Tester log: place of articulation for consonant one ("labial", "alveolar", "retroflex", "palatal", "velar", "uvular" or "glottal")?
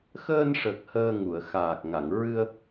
velar